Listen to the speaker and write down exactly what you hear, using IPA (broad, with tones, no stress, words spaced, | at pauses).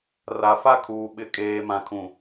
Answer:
ra˨fa˦kʰuː˨ ɓɪ˨ kʼeː˨mã˨kʰũ˨